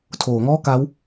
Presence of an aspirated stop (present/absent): present